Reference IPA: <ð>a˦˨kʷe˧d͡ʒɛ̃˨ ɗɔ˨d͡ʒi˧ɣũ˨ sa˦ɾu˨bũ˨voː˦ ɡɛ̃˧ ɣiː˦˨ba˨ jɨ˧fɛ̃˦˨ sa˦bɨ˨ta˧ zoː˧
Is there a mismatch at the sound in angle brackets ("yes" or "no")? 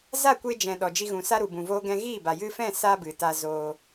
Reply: yes